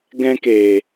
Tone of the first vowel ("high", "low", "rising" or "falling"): high